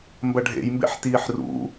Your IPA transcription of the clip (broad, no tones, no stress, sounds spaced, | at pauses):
m b ɐ ɖʱ ḛ j m b ḛ ħ t iː ħ r ṵ